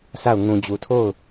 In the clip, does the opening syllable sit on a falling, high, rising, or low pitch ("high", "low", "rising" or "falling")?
falling